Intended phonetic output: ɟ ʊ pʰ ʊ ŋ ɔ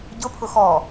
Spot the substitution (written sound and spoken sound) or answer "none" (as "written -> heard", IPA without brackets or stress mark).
ŋ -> x